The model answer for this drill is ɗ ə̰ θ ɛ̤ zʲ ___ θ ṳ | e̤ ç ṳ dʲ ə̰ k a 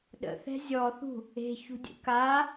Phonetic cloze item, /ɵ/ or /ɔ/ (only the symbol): ɔ